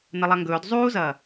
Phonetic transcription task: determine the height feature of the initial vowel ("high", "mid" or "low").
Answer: low